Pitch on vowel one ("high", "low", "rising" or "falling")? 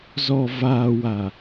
low